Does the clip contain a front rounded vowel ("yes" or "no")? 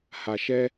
no